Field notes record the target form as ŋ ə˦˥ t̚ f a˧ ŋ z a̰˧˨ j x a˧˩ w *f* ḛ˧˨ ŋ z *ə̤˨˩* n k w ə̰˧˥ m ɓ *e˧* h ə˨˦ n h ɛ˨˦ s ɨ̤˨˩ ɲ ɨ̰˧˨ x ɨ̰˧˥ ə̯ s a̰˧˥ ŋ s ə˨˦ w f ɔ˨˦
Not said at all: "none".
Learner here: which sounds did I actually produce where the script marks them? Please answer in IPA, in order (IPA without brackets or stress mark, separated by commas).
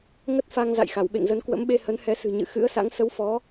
ɓ, ə˨˦, e˧